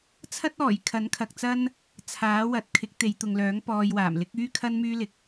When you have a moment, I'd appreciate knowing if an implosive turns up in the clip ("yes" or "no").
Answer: no